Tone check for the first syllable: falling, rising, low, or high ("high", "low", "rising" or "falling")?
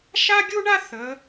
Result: high